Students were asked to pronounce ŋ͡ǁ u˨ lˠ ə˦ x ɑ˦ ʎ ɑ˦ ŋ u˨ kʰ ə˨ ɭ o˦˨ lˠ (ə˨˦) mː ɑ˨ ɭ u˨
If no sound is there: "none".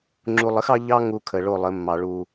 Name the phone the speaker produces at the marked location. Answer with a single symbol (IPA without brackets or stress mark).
ə˨˦